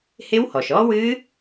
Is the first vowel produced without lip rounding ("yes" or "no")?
yes